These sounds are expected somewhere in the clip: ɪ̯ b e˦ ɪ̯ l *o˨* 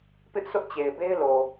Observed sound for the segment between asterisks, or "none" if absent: o˨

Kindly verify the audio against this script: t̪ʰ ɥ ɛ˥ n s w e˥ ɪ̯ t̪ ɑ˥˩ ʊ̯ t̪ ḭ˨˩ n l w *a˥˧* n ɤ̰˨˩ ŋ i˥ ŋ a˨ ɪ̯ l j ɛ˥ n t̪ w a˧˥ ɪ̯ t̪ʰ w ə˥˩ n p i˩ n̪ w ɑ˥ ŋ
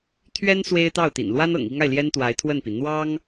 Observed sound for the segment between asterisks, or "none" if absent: a˥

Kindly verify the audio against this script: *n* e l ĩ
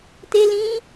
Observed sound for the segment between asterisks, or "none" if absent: t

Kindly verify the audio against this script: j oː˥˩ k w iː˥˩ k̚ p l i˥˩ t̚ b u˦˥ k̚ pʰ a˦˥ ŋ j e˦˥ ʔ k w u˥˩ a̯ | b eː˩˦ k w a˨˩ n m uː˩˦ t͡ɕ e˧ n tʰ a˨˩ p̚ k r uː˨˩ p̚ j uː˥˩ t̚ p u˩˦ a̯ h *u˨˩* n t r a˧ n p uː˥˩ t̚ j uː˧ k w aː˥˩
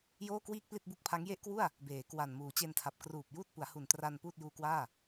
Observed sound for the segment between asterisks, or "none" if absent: u˨˩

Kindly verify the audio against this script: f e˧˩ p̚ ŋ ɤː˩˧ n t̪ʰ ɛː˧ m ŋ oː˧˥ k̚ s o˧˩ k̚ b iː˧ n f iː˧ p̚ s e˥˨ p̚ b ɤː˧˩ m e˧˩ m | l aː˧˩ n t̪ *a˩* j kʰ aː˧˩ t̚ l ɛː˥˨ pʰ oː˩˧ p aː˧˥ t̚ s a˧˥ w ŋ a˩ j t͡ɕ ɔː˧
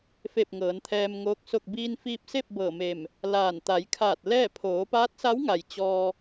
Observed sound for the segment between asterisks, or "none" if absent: a˩˧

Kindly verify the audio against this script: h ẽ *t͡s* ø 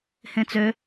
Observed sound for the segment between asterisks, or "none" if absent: t͡s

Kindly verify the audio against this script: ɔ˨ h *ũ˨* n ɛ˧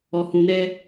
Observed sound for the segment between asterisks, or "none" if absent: ũ˨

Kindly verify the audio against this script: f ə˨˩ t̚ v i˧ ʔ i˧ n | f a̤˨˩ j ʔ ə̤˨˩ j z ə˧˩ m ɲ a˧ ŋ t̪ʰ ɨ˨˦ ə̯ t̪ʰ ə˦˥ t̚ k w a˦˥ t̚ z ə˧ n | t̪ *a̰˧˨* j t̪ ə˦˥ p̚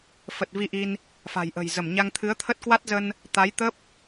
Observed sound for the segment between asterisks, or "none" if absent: a˨˦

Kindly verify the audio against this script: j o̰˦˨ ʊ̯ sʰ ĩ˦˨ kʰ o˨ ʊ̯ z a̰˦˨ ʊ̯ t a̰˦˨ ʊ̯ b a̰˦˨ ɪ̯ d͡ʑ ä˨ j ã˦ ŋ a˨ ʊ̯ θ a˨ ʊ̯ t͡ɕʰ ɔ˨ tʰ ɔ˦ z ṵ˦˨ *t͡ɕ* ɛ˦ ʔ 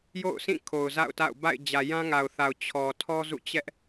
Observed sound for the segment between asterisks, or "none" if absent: t͡ɕ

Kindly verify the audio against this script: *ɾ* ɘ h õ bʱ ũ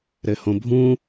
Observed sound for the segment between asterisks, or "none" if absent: ɾ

